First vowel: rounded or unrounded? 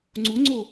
rounded